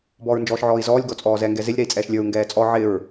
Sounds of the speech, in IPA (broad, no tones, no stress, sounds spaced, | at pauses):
b ɔː ɹ n d͡ʒ ɔː ʃ ʕ ɔː i̯ z ɔː lʲ ɡ ɔ t͡sʼ ɔː z ɛ ŋ ɡ ɛ z ɪ lʲ ɾ ɛ i̯ t͡sʼ ɛː ʃ lʲ ə˞ u̯ ŋ ɡ ɛː t͡sʼ ɔ ʕ ɪ ɹ